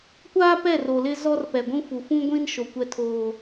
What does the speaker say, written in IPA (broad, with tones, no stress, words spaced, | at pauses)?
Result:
kʷaː˦pɛ˦˨ro˨ lɪ˦zɔ˦r pɛ˨ɡʷũ˦fu˨ fũ˦ɡʷĩ˦nʃo˨ kʷɛ˦ tʰoː˦